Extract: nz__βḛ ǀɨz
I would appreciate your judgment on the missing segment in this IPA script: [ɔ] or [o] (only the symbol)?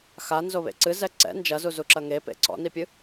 o